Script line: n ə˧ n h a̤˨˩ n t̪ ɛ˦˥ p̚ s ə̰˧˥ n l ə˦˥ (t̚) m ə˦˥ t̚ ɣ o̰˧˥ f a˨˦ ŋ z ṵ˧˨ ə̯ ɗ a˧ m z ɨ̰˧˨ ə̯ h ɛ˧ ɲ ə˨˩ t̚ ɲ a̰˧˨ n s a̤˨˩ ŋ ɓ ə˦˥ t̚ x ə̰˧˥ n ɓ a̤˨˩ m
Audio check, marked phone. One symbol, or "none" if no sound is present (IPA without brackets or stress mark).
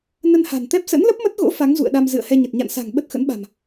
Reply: p̚